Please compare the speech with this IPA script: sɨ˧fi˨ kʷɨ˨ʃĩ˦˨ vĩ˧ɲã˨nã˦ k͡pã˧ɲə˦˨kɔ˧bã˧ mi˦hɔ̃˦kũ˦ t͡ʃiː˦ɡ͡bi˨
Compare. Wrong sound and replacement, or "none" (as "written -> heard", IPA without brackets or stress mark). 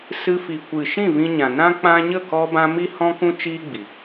none